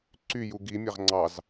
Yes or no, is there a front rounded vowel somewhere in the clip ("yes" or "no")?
yes